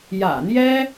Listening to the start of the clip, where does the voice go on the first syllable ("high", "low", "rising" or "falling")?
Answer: low